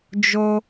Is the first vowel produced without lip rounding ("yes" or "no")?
no